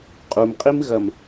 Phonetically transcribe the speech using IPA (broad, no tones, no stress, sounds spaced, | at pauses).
qʼ u m qʼ i m ɣ ɐ m